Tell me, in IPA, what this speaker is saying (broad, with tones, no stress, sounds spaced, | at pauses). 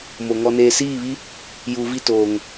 m o˨ ŋ ɔ˨ n eː˨ s iː˦˨ β i˦ | j uː˨ v i˦˨ t oː˨ ŋ